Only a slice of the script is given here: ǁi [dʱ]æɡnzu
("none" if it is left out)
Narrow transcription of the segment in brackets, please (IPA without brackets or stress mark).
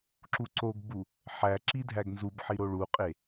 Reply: dʱ